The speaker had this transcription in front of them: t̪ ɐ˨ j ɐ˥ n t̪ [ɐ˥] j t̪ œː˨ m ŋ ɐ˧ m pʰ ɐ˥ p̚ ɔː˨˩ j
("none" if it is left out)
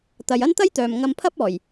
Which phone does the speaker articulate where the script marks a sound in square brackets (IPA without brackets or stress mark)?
ɐ˥